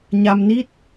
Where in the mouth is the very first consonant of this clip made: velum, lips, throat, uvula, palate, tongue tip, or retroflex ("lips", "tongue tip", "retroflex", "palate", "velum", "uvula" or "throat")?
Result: palate